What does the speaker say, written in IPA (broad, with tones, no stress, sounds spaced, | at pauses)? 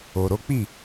o˨ ɾ o˨˦ k͡p i˦˨